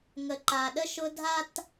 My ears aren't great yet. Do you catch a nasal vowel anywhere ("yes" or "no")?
no